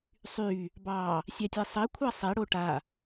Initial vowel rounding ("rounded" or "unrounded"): rounded